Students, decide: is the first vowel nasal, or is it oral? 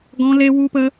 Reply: nasal